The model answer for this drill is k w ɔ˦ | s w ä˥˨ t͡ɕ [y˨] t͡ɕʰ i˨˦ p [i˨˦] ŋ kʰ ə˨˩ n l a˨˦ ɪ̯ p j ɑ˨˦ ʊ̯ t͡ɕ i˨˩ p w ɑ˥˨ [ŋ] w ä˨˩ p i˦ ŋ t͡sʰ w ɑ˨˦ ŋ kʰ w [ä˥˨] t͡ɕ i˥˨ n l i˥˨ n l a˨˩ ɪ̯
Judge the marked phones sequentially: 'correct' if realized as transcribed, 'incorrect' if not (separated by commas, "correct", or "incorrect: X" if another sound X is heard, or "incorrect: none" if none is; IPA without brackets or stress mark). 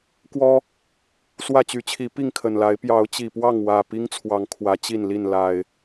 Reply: incorrect: y˨˦, incorrect: i˥˨, correct, incorrect: ä˨˦